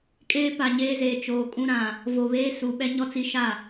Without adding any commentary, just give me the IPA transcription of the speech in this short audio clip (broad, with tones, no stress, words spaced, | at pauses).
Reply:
kʼeː˦pa˨ɲeː˦zeː˨ t͡ʃoː˨kʼũ˦ɾã˨ | vo˨βeː˦ su˨ɓɛ˦ ɲɔ˦t͡si˦ʃa˦˨